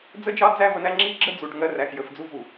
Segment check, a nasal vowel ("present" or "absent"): absent